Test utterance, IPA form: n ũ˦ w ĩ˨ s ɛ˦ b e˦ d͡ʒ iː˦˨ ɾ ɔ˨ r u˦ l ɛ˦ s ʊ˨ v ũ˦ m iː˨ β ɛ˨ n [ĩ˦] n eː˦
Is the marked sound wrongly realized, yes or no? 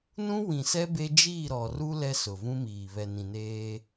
yes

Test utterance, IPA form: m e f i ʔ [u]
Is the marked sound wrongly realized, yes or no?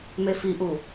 no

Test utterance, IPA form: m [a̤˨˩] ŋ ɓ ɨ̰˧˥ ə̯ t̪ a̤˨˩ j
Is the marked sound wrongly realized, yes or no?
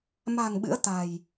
no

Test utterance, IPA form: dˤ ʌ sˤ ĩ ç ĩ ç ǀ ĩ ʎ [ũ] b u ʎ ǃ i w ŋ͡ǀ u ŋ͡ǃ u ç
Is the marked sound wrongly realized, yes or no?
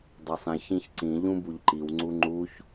no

